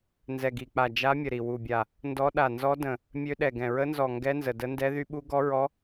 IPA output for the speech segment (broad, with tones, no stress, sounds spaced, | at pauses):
n z ɛ˧˩ ɡ i˧˩ k͡p a˧˩ d͡ʒ a˧˥ mʲ ə˧˩ ɾ i˧˩ w u˧˩ bʲ a˧˩ | n d ɔ˧˥ ɗ a˧˩ n z ɔ˧˥ d ə̃˧˩ | mʲ ø˧˥ ɗ ɛ˧˩ ɡ ɛ̃˧˩ ɹ ə˧˥ n z ɔ˧˩ ŋ ɡ ɛ˧˥ n z ə˧˩ d ə˧˥ n d ɛ˧˥ ð y˧˥ ɓ u˧˥ ɡ ɔ˧˥ ɹ ɔ˧˥